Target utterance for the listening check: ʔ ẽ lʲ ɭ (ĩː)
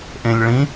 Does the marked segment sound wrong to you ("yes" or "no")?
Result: yes